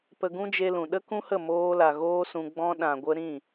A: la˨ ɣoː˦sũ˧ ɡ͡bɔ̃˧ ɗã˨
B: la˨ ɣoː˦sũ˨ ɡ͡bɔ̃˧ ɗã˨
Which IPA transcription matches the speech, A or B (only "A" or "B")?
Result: A